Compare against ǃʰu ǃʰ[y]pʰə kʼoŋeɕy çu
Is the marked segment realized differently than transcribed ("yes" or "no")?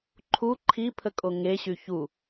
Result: yes